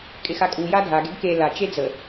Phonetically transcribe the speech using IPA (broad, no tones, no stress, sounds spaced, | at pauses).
kʼ ɪ x a kʼ u j a dʱ a ɡ e ɡ k e l a t͡ʃ e d͡z ə